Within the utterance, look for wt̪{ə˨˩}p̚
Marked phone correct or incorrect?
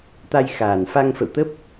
incorrect: ə˦˥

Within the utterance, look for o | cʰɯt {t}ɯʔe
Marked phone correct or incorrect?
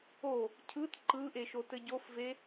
incorrect: ǃ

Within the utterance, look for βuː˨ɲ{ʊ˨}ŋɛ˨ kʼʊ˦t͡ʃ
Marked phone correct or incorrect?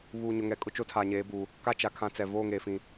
correct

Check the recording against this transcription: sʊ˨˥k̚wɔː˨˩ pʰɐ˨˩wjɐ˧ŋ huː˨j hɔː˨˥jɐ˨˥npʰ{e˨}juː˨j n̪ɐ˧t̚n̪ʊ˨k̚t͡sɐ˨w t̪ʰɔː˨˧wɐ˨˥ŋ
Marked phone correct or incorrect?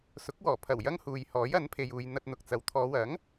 correct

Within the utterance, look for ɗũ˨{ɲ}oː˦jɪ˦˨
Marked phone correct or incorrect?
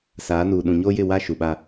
correct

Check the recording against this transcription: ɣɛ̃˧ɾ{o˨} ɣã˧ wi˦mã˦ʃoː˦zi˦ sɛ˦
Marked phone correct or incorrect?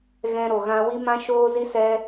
correct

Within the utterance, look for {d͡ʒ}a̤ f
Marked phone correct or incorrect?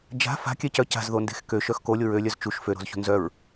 correct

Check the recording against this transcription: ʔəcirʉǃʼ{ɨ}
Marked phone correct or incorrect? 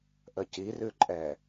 incorrect: ɛ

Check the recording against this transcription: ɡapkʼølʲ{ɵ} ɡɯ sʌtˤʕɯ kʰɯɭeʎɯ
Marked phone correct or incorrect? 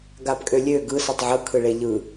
incorrect: ø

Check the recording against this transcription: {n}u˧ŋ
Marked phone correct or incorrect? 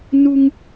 correct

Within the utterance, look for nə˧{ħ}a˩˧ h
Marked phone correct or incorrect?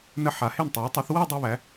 correct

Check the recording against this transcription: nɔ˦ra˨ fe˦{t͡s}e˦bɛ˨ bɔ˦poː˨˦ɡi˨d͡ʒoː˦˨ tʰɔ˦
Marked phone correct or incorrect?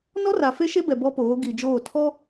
incorrect: ʃ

